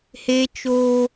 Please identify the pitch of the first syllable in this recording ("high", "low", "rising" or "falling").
high